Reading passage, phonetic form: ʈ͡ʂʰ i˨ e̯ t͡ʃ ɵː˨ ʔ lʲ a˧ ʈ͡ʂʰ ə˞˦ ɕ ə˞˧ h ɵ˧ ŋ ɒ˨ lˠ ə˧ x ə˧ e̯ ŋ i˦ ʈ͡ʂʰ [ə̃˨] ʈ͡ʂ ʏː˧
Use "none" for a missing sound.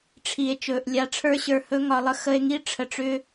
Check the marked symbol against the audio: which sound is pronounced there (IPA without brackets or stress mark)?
ə˨